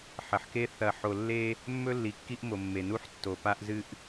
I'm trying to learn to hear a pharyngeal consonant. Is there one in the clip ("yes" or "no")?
yes